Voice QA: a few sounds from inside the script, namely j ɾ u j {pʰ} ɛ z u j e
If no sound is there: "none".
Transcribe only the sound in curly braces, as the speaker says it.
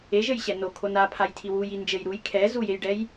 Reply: kʰ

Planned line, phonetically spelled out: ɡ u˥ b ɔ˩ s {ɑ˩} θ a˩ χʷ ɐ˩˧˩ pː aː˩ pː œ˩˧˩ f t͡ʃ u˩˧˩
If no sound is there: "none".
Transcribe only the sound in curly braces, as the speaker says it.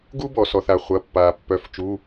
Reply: ɔ˩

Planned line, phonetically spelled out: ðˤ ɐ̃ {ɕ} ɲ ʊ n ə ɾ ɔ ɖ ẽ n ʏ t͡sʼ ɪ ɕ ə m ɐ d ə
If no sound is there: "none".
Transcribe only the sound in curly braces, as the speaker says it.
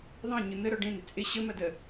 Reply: none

